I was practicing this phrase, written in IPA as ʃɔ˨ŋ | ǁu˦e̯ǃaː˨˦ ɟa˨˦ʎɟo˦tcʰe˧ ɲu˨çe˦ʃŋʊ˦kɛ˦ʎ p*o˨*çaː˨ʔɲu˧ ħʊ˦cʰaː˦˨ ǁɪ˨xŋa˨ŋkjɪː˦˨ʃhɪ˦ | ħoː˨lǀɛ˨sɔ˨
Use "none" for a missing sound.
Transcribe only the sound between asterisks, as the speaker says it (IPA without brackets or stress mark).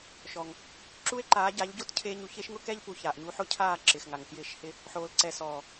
u˨